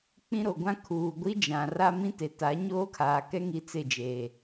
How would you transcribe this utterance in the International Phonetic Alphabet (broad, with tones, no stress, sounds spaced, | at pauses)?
k͡p ĩ˦ ɾ o˨ ɡʷ ã˦ kʰ uː˨ ɡʷ i˦ d͡ʒ ã˨ r a˦ m ĩ˦ t e˨ t a˨˦ ɲ oː˦ kʰ aː˨ k ɛ˦ ŋ i˦ t͡s ɪ˦˨ d͡ʒ eː˨